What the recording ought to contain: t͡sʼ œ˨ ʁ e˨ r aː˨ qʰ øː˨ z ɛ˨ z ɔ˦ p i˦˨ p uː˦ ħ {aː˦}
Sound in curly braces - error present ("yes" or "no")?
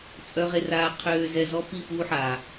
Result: yes